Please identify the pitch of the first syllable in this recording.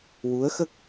rising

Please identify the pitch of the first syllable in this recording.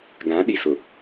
rising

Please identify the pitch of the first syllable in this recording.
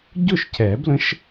falling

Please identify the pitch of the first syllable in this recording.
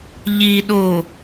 low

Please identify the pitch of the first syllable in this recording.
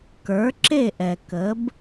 rising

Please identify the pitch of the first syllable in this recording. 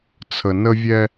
low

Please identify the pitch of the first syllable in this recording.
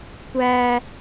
high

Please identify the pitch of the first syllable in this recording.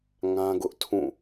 high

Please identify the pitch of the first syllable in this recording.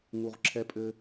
low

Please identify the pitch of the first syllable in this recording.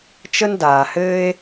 high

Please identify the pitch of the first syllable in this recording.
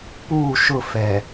falling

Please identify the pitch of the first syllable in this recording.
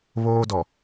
high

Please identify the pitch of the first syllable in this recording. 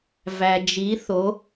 low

